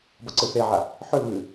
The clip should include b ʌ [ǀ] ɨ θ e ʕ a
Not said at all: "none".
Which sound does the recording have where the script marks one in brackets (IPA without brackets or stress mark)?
ǀ